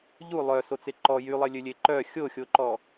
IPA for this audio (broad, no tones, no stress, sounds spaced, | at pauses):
ʎ u lˠ œ s o t͡s e ǃ ɔ j y lˠ e lʲ ø lʲ e ǃ œ xʲ o xʲ o ǃ ɔ